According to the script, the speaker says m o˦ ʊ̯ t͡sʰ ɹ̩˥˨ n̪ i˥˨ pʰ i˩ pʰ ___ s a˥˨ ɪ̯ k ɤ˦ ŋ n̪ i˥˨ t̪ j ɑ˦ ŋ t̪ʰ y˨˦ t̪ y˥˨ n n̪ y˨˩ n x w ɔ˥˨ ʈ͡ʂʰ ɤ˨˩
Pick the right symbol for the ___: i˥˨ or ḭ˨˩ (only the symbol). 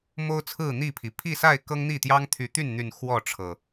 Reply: i˥˨